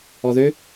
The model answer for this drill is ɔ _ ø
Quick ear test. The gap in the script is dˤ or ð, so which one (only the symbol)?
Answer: ð